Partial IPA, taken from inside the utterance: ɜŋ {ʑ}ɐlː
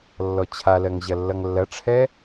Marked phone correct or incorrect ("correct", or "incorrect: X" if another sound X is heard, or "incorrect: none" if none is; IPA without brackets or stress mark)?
correct